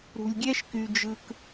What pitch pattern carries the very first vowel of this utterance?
low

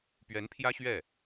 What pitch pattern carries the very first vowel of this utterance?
rising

